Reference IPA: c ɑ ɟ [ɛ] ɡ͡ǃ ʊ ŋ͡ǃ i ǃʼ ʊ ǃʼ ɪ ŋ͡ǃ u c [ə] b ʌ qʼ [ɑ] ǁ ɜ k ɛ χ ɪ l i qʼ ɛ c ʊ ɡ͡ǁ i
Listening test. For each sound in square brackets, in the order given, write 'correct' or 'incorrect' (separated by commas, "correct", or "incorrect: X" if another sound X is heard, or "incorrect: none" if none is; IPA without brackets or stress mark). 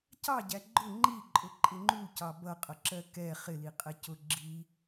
incorrect: æ, incorrect: ɑ, incorrect: ʌ